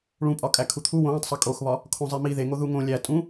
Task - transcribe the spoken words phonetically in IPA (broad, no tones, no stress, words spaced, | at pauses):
ɭũpʼɒkʼæ kʰut̪ʰu wõwõtˤsˤe kʼoxβɒ | kʰõzˤemi ðeŋo ðuŋõ lʲæ tʼũ